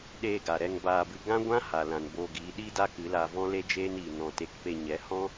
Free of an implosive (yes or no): no